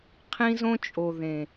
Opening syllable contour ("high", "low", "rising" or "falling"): high